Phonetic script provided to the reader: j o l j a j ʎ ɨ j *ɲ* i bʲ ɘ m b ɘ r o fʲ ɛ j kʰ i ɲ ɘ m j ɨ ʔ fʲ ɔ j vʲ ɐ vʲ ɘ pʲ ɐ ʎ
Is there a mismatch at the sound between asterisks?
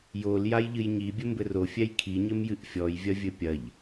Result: no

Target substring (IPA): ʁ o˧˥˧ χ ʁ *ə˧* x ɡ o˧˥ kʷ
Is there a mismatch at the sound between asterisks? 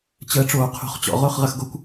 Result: no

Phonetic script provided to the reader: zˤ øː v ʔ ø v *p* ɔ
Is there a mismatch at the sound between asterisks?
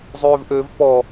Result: no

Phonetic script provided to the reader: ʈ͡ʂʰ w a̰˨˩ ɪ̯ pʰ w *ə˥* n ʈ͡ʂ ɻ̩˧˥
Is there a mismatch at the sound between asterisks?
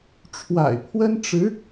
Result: no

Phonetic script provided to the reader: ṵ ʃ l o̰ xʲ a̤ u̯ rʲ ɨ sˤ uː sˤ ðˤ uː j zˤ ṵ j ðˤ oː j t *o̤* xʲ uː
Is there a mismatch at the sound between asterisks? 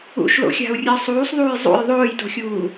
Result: no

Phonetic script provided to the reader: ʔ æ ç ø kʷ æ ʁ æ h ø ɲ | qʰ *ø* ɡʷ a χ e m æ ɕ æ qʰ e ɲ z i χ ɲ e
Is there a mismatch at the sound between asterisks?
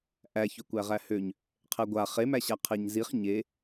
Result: yes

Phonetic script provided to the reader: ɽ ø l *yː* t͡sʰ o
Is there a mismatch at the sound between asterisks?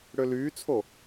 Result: no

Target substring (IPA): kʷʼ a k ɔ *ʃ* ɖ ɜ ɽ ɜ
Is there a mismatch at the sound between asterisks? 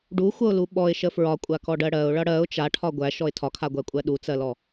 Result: yes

